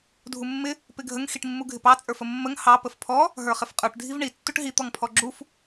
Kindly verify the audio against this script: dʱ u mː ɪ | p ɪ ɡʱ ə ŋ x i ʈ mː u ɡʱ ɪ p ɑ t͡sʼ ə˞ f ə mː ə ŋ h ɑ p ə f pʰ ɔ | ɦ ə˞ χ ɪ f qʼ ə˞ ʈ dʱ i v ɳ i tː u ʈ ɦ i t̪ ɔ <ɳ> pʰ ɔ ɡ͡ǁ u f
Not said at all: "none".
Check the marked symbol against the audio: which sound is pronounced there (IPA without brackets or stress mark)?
ŋ